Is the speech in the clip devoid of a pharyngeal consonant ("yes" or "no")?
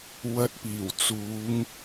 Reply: yes